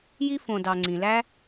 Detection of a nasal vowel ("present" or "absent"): present